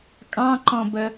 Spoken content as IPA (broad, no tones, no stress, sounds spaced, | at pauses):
kʼ ɑ̃ ǃ ɔ̃ b ə